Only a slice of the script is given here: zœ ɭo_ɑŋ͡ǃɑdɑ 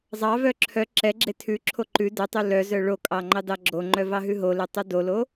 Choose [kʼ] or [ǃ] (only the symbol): kʼ